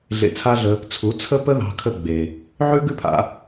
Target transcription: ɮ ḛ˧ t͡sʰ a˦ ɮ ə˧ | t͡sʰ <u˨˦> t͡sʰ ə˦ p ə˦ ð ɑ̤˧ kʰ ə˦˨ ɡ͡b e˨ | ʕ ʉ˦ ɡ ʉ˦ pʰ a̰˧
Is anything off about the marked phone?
no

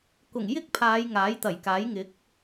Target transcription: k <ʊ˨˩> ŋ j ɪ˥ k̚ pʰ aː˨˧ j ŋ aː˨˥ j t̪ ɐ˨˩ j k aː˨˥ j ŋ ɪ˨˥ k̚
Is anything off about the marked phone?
no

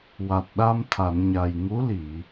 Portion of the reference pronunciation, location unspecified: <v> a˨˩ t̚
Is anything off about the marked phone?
yes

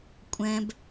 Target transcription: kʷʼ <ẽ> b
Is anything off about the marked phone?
yes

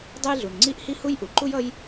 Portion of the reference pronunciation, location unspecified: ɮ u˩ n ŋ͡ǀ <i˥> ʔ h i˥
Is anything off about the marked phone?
no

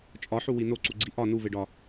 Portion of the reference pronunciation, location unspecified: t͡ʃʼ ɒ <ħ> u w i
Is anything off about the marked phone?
no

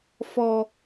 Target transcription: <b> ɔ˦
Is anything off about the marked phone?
yes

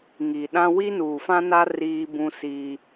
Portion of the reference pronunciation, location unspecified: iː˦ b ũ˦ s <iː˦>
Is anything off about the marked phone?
no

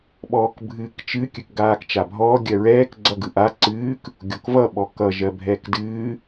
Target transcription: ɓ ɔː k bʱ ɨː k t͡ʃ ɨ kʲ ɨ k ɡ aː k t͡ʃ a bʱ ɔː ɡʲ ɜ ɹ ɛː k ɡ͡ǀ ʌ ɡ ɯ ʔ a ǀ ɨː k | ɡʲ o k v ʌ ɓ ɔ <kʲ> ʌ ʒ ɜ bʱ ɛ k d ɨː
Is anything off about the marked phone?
yes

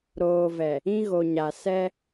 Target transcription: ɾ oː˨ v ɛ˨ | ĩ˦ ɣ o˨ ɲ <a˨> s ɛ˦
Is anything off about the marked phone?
no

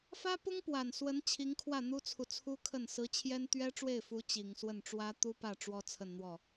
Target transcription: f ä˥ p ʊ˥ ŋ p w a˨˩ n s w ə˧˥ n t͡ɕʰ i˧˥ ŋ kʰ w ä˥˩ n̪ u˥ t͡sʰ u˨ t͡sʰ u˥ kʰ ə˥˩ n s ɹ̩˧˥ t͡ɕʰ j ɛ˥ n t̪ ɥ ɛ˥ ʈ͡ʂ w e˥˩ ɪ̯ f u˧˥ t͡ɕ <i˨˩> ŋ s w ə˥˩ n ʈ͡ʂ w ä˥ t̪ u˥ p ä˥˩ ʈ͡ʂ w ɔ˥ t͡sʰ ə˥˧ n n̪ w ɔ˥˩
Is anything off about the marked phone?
no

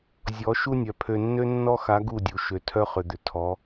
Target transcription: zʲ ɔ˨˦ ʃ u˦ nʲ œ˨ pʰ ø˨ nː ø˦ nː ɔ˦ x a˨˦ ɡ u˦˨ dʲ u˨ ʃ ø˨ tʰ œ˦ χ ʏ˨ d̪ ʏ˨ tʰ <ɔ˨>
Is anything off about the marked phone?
yes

